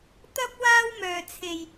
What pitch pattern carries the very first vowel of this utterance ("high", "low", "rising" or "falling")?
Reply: high